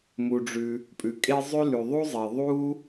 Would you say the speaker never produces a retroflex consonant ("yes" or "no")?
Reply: no